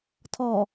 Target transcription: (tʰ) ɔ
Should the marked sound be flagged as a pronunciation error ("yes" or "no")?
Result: no